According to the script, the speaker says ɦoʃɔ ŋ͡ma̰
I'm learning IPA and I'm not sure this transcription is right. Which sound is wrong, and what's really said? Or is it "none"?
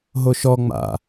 none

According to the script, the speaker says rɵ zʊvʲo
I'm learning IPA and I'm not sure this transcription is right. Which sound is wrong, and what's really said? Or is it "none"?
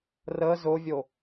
ɵ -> ə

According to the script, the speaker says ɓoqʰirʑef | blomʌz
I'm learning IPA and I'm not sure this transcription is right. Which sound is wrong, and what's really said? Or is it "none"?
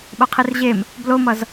f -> m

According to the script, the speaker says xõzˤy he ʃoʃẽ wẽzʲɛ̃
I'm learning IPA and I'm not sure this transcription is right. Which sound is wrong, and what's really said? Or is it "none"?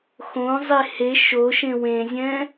y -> e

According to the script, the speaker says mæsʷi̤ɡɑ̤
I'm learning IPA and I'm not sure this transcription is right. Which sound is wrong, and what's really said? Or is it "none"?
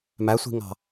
ɡ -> ŋ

